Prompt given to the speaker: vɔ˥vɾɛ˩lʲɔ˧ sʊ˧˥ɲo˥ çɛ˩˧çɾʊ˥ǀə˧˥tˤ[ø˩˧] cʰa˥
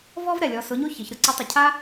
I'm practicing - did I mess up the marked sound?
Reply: yes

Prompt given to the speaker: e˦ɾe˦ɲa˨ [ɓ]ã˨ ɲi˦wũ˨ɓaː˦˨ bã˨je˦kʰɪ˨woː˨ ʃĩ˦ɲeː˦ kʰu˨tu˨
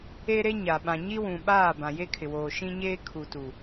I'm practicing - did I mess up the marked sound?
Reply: no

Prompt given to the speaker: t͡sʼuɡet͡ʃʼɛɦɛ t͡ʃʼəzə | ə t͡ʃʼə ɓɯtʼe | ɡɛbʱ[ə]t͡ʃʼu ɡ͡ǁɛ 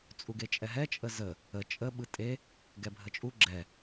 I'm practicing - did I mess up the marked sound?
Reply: no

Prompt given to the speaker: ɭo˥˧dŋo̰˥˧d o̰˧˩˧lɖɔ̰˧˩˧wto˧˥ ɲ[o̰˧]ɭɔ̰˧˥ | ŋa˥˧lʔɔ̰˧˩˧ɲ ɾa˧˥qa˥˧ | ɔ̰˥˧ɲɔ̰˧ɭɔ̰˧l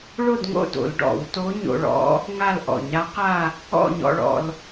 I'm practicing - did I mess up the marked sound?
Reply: no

